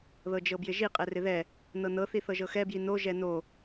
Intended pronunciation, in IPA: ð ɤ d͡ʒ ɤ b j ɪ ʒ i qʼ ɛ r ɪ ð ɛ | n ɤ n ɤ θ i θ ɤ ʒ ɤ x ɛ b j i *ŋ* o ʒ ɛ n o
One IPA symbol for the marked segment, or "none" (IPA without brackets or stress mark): n